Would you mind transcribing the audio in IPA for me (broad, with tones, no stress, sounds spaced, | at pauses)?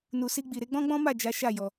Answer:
n u˨ s i˧ ɡ͡b i˨ ɾ e˧ ɡ͡b ɔ̃˦ ɡ͡b ɔ̃˦ m a˦˨ d͡ʒ a˨˦ ʃ a˦˨ j ɔ˧